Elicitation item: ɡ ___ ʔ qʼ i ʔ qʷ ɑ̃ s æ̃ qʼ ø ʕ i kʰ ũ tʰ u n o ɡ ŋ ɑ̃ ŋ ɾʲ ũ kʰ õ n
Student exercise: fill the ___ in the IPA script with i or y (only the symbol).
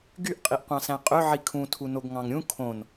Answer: y